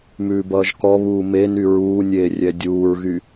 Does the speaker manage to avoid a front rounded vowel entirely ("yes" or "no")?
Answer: no